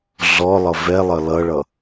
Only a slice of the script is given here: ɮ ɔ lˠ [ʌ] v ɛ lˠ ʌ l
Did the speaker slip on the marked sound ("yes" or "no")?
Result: no